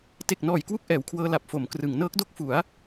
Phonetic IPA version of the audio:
t e˨˩ k̚ n ɔː˨˩ j k w u˥˩ k̚ ʔ ɛː˩˦ w kʰ w ɤː˧ l a˨˩ p̚ f o˩˦ m k r ɯ˩˦ ŋ n ɤː˦˥ k̚ d o˥˩ k̚ f u˩˦ a̯

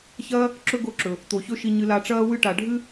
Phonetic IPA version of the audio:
ç ɐː˦ | ǁ ɵ˦ ɡ o˦˨ ǁ ɵ˨ | t̪ o˨ ç ɵ˦ ʃ i˧ ɲ ɨ˧ l a˧ ʈ͡ʂ ɐː˦ w ɨ˦ ʈ a˨ ɖʱ ɨ˦

